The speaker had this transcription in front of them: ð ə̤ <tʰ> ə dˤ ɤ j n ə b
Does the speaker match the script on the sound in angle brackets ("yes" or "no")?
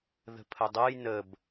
no